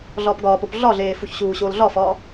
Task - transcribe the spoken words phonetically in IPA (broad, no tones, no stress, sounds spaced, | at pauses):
ɮ ɒː p ɡ ɒː p o p ɮ ɒ ɮ eː f u ç ɕ uː ɕ oː l ɮ ɒ f ɒː